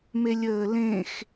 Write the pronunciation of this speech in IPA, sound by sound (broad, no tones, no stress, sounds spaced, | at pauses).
m e lʲ əː l ẽ x